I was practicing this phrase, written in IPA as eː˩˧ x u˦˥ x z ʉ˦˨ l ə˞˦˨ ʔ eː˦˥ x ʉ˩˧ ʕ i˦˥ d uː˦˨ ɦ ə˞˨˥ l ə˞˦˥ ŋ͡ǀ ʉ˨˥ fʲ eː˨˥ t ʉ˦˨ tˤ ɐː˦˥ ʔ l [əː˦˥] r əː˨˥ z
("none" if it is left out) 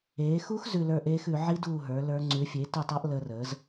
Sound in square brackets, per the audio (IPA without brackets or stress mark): əː˦˥